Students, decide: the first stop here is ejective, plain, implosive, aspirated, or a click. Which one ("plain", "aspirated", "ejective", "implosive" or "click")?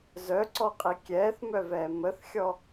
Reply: click